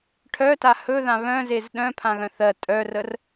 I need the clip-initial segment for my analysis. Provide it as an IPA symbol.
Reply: ʈʰ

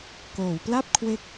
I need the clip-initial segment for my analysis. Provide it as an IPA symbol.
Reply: k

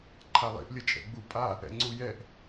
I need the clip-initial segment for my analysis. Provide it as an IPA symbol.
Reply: ǃʰ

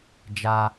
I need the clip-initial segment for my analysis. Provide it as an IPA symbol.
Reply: d͡ʒ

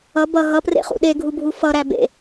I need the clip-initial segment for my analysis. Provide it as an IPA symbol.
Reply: ʌ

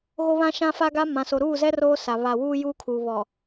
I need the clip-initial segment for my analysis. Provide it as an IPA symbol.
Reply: ɣ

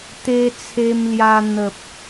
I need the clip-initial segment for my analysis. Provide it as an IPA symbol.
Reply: t̪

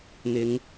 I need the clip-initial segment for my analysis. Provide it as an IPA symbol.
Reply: n̪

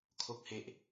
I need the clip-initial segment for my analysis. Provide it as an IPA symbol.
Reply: kʰ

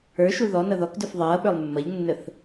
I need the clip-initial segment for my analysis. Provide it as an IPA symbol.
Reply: ə˞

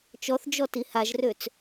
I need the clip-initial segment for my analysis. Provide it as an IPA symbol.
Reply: t͡ʃ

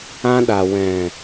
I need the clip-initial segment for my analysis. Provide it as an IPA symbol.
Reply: ã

